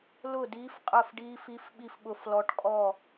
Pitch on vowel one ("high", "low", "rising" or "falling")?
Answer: falling